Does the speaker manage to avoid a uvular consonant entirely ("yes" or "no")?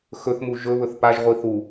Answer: no